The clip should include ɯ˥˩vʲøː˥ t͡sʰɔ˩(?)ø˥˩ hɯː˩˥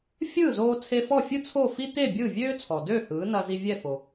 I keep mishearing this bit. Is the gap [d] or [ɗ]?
d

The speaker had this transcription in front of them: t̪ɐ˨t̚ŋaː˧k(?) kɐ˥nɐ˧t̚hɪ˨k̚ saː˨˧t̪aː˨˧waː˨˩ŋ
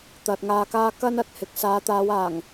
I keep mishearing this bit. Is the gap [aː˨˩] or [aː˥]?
aː˥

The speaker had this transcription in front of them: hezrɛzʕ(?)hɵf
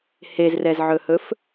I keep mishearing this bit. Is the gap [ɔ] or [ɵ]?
ɵ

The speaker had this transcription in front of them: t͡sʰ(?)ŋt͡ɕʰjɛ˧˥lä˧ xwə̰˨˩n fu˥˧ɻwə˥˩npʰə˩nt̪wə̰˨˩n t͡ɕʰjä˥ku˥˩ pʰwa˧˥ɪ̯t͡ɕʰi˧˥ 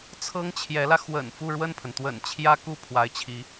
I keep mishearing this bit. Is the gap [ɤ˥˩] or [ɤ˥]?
ɤ˥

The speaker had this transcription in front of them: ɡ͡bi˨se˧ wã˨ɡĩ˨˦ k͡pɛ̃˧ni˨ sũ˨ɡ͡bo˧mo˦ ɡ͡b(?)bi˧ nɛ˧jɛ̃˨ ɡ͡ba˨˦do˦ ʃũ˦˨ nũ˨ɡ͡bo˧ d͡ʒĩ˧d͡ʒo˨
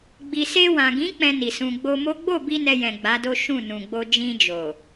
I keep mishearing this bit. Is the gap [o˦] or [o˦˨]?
o˦˨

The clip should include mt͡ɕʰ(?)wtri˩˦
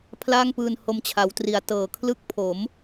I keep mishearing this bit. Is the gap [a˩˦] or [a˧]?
a˩˦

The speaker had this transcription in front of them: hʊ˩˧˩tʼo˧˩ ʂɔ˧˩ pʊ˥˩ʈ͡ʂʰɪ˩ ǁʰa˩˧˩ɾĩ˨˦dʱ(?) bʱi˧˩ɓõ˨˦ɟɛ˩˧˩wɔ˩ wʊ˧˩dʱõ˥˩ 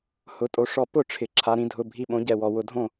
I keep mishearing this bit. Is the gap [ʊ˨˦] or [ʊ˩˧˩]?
ʊ˩˧˩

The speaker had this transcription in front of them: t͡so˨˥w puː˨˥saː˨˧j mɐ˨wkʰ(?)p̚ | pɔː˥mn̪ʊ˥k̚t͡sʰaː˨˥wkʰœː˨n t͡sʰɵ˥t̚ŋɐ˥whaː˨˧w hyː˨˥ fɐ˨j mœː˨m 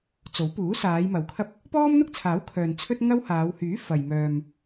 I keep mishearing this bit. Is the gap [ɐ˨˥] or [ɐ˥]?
ɐ˥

